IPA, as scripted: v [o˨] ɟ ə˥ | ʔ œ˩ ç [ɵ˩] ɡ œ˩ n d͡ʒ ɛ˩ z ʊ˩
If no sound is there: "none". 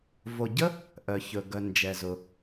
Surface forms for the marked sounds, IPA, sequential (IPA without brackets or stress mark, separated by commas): o˨, ɵ˩